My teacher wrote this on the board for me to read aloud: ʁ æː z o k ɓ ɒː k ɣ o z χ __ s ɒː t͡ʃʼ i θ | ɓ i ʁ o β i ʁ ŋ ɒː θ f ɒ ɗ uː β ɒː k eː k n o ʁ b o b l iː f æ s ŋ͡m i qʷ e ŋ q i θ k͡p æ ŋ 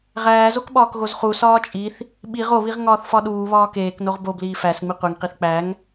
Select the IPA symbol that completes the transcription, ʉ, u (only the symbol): u